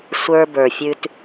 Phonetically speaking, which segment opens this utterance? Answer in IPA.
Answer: sʷ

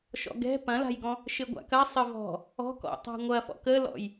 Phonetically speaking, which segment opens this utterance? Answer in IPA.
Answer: ʃ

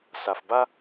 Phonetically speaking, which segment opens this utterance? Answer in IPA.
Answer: s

